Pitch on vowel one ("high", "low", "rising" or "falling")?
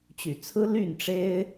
low